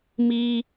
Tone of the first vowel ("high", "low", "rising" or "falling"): high